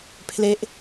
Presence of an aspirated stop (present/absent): present